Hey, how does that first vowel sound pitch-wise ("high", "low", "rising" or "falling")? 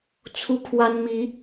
high